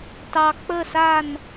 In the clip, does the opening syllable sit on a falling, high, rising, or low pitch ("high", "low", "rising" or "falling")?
low